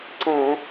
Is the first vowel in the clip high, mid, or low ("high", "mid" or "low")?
low